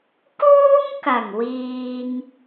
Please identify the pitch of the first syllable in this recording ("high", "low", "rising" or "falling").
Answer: high